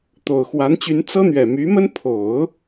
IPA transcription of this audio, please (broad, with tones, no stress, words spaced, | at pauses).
t̪o˨˩ʊ̯ xwa˧˥nt͡ɕy˧˥n t͡sɤ˥n̪ɥɛ˨˩ my˧˥mə˥n pʰo˨˩˦ʊ̯